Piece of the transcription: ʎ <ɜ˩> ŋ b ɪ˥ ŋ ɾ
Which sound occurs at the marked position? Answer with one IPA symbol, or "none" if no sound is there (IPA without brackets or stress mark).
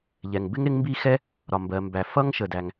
ɛ˩